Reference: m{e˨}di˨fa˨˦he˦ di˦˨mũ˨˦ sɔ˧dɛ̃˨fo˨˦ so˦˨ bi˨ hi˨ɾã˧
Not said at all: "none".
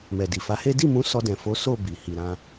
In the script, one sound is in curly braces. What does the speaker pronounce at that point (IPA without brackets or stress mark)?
ɛ˨